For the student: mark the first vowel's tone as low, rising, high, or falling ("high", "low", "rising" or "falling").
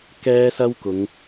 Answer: high